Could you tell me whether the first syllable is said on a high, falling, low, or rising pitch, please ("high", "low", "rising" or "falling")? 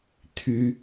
high